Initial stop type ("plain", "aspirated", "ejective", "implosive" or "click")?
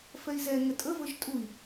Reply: ejective